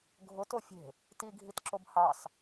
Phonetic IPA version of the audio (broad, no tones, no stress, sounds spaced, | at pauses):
ɡʱ ʊ t o fʲ e̤ | t i ɡʱ i t ǁ o b h ɑ s